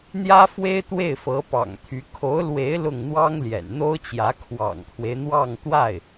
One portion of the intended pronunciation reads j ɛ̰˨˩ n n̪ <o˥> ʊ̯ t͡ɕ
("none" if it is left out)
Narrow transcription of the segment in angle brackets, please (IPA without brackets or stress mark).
o˥